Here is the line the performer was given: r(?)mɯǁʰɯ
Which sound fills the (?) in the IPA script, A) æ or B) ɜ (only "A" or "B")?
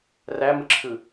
A